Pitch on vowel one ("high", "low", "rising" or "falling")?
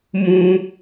high